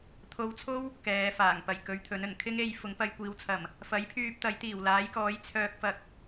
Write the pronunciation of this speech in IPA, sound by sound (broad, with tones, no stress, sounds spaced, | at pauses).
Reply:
t̪ʰ o˧ w t͡sʰ o˥ w | k ɛː˨˧ f aː˨˩ ŋ p ɐ˨˩ j k ɵ˨˧ ɥ t̪ʰ ɵ˨˥ n ɵ˨˩ n kʰ ɪ˥ ŋ e˧ j f ʊ˨˥ ŋ p ɐ˧ j kʷ iː˨˧ w t͡sʰ ɐ˨˩ m | f ɐ˨˥ j pʰ yː˧ p̚ t̪ ɐ˨˥ j t̪ iː˨˩ w l aː˨˥ j k ɔː˨˥ j t͡sʰ œː˧ k̚ f ɐ˧ k̚